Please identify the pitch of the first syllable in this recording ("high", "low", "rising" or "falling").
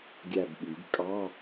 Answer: falling